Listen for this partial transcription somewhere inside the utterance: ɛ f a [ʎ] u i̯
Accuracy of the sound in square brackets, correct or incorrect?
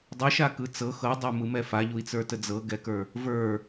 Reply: correct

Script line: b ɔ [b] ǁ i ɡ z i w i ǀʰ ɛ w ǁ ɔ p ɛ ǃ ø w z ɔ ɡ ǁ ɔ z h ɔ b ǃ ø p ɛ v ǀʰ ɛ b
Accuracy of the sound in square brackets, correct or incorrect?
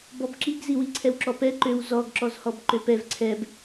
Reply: correct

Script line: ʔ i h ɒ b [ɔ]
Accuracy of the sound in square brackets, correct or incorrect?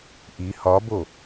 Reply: incorrect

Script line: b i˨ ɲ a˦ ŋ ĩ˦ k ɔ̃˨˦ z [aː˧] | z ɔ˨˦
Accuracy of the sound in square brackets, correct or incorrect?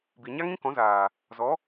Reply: incorrect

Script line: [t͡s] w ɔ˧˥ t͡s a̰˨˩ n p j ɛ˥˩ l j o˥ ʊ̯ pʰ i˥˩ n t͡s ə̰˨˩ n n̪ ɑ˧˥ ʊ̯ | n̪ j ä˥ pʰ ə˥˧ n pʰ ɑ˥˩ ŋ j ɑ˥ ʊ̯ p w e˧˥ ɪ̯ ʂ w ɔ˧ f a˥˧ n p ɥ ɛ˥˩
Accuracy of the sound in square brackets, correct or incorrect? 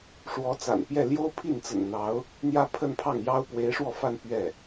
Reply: incorrect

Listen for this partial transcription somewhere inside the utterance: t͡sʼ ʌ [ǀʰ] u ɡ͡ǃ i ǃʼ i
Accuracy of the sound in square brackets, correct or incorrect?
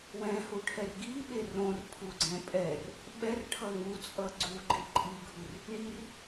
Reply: incorrect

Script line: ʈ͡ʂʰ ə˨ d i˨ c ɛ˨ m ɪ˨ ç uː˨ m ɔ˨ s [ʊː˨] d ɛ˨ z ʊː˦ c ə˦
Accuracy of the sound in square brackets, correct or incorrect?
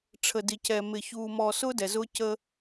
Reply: incorrect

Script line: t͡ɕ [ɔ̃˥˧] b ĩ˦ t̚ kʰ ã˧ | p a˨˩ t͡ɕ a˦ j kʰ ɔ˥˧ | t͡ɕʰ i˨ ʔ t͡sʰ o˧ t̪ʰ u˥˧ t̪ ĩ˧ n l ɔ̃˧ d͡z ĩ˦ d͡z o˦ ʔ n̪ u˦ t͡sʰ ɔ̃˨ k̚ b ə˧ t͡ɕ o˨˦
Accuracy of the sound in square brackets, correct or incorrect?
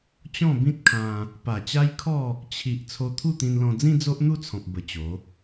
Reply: correct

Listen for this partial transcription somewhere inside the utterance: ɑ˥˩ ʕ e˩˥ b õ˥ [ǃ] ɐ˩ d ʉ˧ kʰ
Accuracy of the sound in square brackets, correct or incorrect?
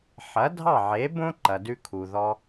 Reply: correct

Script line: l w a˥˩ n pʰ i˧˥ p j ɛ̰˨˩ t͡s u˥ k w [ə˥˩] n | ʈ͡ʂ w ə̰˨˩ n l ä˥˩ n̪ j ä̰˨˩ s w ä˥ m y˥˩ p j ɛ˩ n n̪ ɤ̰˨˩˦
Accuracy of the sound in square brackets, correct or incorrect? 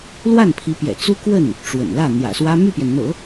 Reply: correct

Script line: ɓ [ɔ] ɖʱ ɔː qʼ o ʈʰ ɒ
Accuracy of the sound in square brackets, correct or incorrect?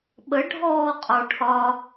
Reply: incorrect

